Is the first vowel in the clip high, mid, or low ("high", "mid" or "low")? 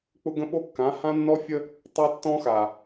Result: high